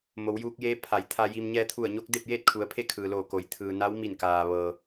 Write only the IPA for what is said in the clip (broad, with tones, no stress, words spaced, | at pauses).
mo˩˧wjuː˧k̚jeː˧˥ pʰa˩˧j t̪ʰa˧ji˧m ɲɛː˧t̪ʰu˧˩ə̯ɲo˧˥k̚ de˥˨p̚jeː˥˨t̚kʰu˩˧ə̯ pʰe˥˨kʰɯː˩loː˧˩ ko˩˧j t̪ʰɯː˩na˧˥wmi˧˩n kaː˩ ʋɤː˩